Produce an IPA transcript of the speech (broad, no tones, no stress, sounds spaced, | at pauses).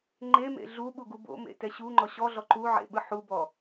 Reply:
ŋ͡ǃ e m ḛ ɮ u ɓ u ɡ u b o̰ m ḛ t ɛ ɕ u ŋ͡ǃ ɔ ɕ ɔ ɮ ɔ ǃ u ʕ ḛ ɓ ɯ ħ u b ɔ